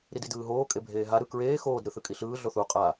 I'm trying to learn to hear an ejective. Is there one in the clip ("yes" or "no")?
yes